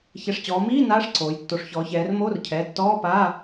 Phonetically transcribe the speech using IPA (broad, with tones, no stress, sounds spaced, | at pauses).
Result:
ç ɛ˩˧˩ ʂ t͡ɕ ɔː˩˧ m iː˧˥˧ n aː˧˥˧ ʂ ǀ oː˩˧ j tː o˩˧ ʂ ç ɔː˩˧ ç ɛː˩˧ r m oː˧˥˧ r cʰ ɛː˩˧˩ tː ɔː˧˥˧ p aː˧˥˧